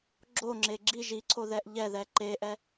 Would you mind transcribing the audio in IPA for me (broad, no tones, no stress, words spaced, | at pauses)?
ɡ͡ǁoŋ͡ǁe ɡ͡ǁi ʒiǀʰoðɛʔ ʎɛðɛ ǃeʔɛ